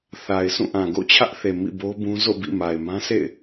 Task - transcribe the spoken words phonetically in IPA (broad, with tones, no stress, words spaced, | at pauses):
θa˨ɪ̯sũ˦˨ʔã˨ ɡo̰˦˨t͡ɕʰä˦ʔθe˨ mḭ˦˨bo˦bũ˦ zo̰˦˨bḭ˦˨ ma˨ɪ̯mã˦ sʰḛ˦˨ɪ̯